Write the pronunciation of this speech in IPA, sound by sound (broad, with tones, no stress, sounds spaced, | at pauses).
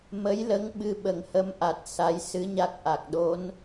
m ə˧˥ j l ə˧˥ ŋ ɓ ɨ˧ ɓ ə˨˩ ŋ h ə˧˥ m ʔ a˨˩ t̚ s a˧˥ j s ɨ˧˥ ɲ a˦˥ k̚ ʔ a˨˩ k̚ ɗ o˧˥ n